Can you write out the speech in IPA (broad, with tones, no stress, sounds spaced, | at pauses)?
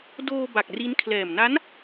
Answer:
d oː˧ b a˨˩ k̚ r i˦˥ n kʰ l ɛː˨˩ m n a˦˥ n